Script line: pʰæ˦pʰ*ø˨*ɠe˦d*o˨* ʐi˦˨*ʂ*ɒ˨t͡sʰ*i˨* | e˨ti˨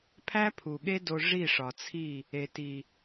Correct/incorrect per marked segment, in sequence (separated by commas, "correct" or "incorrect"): incorrect, incorrect, correct, incorrect